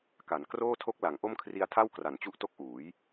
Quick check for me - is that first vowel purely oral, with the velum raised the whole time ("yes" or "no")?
yes